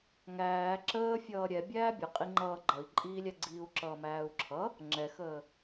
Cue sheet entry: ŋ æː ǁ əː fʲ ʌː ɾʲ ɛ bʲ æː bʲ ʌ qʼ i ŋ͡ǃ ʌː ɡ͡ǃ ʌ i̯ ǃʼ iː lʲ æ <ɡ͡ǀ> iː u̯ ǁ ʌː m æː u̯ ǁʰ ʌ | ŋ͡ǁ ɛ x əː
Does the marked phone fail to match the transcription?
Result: no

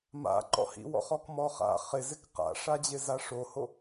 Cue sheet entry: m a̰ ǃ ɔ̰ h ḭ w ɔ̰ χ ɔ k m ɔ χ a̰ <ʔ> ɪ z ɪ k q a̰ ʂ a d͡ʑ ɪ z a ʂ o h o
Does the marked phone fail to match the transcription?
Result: yes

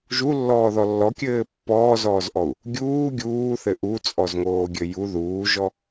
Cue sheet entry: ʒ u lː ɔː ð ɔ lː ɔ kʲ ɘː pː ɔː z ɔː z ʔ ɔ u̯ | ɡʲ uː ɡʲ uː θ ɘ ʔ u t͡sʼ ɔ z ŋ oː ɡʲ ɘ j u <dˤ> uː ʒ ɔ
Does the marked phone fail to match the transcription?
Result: yes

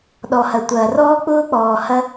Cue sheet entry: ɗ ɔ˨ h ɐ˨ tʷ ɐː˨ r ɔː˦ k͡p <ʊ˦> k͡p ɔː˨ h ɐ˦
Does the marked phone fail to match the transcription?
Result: yes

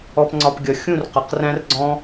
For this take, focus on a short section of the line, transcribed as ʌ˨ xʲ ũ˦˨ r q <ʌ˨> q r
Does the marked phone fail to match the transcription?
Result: no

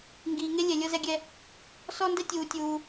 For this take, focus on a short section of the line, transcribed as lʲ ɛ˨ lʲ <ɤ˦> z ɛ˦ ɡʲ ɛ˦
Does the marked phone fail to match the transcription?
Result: no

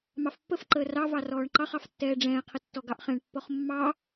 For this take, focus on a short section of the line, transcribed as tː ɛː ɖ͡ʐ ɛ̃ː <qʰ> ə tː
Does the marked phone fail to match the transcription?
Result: no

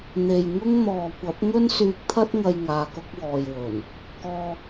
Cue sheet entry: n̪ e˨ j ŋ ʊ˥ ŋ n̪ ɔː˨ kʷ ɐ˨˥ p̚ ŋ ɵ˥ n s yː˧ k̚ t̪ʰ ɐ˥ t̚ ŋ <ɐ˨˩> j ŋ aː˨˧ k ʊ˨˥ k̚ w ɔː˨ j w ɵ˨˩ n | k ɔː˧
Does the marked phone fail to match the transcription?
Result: yes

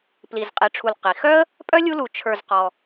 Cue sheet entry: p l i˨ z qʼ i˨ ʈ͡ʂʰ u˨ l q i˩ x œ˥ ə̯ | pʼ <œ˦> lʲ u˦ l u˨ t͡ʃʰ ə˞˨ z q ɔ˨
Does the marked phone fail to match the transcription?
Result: yes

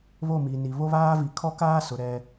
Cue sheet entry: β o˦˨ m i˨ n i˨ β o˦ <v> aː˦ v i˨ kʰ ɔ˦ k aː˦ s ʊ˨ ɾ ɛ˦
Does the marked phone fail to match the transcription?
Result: yes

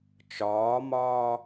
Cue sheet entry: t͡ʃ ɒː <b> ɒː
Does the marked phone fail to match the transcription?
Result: yes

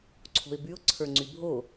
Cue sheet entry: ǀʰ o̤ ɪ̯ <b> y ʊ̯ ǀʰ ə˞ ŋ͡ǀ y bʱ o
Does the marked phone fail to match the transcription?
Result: no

